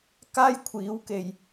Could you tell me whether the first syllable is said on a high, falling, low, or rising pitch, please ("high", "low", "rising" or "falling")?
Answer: high